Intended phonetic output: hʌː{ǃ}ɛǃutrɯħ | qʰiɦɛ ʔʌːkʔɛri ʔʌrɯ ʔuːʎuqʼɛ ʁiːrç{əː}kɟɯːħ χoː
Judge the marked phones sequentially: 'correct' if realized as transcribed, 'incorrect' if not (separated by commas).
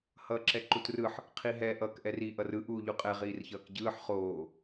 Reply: incorrect, incorrect